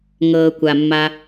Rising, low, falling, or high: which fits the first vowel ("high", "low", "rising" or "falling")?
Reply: low